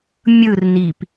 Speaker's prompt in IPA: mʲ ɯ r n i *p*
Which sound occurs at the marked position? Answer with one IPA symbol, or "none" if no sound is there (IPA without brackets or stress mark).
p